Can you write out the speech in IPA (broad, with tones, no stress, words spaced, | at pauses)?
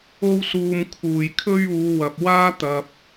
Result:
o˥wsuː˧mkʰuː˨j kʰɵ˥ɥuː˨˧ wɐ˨p̚ waː˥ t̪ɐ˧p̚